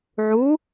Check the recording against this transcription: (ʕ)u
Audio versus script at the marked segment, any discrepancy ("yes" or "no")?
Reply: no